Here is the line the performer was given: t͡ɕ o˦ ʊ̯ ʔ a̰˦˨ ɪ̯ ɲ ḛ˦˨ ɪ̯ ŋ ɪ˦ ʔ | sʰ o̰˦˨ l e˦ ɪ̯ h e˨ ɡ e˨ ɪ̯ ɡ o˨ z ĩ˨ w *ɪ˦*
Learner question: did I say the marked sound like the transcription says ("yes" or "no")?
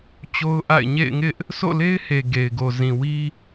no